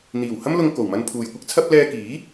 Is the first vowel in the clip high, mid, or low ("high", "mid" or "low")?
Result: high